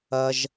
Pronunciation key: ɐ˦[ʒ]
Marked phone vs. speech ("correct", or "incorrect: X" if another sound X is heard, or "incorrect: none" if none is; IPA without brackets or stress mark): correct